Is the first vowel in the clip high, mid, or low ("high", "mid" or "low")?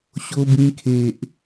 mid